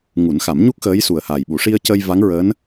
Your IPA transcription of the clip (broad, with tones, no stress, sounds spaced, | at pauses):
ŋ u˨˩˦ n x a˨˩˦ m ɲ u˦˥ k̚ x əː˧˥ j s u˨˩ ə̯ h aː˨˩ j ɓ u˨˩˦ ʂ i˧ ə̯ c ə˧ j v a˧˥ ŋ ɹ əː˧˥ n